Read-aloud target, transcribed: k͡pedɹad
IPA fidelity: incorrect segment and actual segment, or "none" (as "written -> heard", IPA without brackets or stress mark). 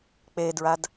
none